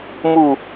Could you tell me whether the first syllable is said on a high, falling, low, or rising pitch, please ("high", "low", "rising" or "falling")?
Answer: falling